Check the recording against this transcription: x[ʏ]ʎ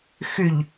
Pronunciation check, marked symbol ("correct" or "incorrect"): correct